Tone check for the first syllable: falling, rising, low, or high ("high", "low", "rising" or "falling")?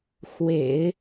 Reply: low